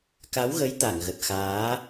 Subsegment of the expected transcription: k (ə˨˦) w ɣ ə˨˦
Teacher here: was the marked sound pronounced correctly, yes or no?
no